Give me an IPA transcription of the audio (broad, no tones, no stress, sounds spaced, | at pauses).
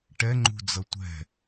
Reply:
ʈ ɛ ŋ͡ǃ ṳ d͡z ʌ tʷ ɛ̤